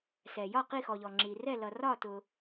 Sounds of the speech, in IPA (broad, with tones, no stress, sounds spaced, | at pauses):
s ɛ˩ j ɒ˥˩ q i˥˩ x ɔ˩ ʎ ɔ˩ ŋ͡ǁ i˩ r ɛ˥˩ l ʌ˩ r ɒ˥˩ t ʊ˩